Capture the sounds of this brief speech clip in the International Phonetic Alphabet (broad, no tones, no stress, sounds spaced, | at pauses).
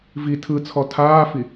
v i tʰ ɯ t͡sʰ ɔ tʰ aː f i